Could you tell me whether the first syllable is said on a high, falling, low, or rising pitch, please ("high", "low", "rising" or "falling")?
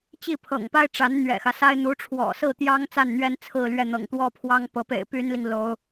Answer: falling